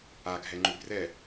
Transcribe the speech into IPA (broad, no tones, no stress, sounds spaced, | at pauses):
a ɡʱ ɛ ŋ͡ǃ ʉ b r ɛ